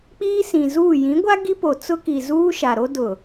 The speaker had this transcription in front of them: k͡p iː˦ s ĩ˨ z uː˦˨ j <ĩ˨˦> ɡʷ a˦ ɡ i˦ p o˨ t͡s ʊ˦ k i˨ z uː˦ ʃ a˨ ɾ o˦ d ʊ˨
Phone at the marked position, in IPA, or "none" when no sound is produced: ĩ˨˦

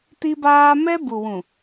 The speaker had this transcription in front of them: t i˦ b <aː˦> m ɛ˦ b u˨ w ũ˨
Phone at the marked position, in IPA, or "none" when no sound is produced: aː˦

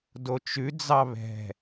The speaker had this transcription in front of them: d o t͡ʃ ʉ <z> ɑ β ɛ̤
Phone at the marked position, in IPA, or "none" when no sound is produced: d͡z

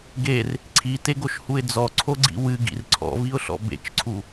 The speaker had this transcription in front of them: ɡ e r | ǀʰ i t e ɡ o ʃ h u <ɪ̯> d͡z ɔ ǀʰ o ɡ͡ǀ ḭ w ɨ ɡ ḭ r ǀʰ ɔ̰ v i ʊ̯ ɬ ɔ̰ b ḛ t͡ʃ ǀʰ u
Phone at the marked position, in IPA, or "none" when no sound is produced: ɪ̯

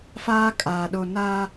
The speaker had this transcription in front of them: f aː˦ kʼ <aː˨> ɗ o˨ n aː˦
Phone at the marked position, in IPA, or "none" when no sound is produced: aː˨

